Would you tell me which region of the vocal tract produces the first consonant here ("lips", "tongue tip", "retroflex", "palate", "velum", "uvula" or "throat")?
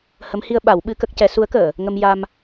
throat